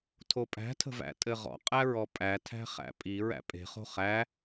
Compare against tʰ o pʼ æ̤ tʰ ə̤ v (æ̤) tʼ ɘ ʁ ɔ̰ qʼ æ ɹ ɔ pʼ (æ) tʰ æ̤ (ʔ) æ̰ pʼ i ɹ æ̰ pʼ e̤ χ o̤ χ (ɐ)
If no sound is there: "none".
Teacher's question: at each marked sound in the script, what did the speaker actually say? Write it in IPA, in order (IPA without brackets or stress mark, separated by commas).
æ̰, æ, χ, æ